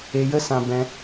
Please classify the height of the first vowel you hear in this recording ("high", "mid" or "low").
mid